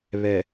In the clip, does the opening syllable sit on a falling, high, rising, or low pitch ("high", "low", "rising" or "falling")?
low